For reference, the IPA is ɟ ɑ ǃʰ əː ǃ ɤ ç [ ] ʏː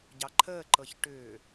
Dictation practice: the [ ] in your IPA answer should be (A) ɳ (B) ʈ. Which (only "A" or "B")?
B